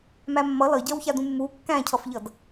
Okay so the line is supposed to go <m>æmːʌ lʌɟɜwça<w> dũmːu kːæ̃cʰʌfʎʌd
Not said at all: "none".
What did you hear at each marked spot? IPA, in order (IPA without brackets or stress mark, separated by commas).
m, none